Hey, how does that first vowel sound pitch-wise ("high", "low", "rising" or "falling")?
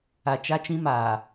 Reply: low